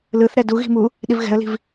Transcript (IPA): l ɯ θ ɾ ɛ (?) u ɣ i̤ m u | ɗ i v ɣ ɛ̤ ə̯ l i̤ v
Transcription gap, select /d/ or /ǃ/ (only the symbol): d